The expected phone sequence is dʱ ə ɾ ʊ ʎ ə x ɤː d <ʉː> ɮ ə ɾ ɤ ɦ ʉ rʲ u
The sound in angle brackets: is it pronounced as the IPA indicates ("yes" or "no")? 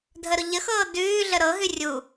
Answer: yes